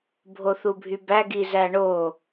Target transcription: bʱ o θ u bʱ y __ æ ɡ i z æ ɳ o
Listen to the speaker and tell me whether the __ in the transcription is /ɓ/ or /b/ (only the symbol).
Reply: b